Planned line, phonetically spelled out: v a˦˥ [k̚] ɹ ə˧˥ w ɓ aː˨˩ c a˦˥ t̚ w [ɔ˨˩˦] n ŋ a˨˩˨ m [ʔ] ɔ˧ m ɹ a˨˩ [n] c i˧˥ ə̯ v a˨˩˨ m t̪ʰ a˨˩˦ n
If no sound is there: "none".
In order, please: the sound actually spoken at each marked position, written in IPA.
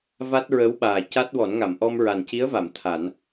t̚, ɔ˨˩˦, ʔ, n

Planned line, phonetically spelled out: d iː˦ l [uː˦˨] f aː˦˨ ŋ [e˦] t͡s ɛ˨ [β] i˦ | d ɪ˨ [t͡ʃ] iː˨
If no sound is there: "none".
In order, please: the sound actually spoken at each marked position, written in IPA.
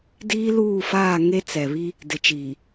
uː˦˨, e˦, β, t͡ʃ

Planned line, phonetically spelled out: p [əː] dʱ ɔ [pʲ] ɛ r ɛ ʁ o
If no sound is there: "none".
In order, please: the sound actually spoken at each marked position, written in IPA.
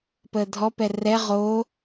əː, p

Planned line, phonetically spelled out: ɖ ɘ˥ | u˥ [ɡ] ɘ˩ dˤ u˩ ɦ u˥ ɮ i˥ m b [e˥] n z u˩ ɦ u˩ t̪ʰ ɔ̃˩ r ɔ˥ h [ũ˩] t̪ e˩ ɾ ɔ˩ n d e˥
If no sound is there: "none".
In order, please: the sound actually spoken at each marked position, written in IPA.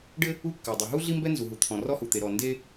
kː, ɛ˥, u˩

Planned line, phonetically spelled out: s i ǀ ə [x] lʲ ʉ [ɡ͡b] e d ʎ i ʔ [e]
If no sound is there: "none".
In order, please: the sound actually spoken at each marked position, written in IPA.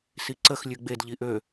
x, ɡ͡b, ø

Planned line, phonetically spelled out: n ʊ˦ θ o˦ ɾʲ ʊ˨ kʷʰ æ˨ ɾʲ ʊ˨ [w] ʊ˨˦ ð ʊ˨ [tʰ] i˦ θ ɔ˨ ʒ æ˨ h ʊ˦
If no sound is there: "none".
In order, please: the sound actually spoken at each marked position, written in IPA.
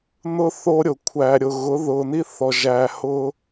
ɣ, n

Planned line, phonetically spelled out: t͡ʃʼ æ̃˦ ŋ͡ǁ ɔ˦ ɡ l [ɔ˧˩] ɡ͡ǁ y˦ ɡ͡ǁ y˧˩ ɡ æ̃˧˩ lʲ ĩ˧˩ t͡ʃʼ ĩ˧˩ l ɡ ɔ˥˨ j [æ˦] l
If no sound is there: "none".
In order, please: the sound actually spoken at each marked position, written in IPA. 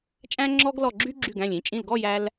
ɔ˧˩, æ˦

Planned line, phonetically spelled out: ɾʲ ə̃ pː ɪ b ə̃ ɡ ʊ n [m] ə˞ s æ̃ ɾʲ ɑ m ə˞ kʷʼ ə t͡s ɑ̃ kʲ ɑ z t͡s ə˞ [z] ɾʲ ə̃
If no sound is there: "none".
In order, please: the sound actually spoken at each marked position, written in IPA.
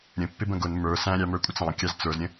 m, z

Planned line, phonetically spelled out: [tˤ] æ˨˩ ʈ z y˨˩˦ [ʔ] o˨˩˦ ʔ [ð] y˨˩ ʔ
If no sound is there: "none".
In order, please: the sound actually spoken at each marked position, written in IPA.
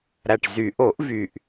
ɾ, ʔ, v

